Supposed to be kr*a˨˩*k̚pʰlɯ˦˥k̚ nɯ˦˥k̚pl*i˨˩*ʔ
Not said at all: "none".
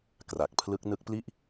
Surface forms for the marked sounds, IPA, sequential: a˨˩, i˥˩

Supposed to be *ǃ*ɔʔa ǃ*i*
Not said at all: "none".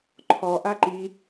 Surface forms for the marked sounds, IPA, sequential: ǃʰ, i

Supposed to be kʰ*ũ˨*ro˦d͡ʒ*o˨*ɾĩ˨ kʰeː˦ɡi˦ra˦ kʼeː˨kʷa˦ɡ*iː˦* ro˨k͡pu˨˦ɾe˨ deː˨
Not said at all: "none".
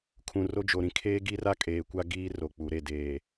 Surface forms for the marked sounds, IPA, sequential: ũ˨, o˨, iː˦

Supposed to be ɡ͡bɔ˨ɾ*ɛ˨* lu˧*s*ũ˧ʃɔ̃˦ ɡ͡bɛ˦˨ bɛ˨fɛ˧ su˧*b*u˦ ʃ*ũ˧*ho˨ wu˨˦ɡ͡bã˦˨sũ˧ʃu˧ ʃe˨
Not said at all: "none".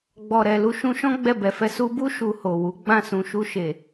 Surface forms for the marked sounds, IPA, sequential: ɛ˨, ʃ, b, u˧

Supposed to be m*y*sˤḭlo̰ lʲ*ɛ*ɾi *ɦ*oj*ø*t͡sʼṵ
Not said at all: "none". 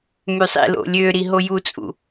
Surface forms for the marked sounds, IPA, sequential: y, ø, ɦ, u

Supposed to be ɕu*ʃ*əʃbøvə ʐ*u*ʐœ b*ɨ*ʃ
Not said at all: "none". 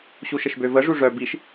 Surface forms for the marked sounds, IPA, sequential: ʃ, u, i

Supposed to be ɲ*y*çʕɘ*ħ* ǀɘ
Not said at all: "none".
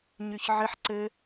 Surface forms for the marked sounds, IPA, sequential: y, ħ

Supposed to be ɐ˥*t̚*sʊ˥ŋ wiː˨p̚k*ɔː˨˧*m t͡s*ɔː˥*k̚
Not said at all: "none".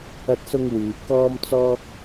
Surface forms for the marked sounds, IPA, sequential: t̚, ɔː˥, ɔː˥

